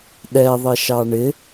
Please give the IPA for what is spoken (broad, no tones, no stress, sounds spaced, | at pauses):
ɗ ɛ ðˤ ɪ ʃ ɑ ɳ ɪ